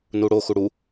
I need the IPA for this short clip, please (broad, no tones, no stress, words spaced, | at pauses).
nuɽo xuɽu